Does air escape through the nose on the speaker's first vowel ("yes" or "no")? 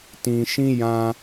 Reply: yes